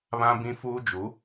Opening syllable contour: high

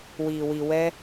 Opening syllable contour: low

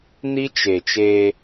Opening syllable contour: high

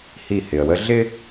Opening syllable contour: falling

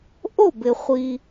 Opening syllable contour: falling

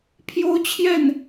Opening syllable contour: high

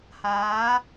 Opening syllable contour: rising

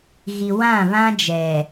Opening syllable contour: low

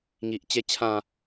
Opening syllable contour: low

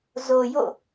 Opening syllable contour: low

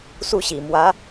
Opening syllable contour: falling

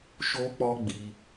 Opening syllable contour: high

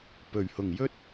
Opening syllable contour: low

